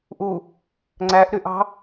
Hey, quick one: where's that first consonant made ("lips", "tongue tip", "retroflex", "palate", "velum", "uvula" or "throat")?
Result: throat